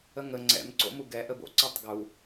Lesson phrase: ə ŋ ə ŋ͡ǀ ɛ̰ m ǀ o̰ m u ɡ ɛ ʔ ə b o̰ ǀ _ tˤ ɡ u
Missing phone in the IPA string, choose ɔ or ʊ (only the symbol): ɔ